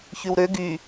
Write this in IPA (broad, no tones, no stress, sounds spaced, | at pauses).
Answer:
ç y w ɾ ø ɡ y